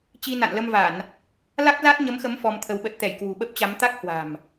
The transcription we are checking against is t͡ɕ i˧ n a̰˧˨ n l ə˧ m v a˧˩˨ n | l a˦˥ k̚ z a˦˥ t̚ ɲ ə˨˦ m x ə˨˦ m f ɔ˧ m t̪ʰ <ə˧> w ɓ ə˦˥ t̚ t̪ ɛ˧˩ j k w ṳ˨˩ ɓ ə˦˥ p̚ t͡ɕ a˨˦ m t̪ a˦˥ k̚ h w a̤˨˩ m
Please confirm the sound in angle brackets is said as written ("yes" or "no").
yes